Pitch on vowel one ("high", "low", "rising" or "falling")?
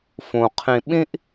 low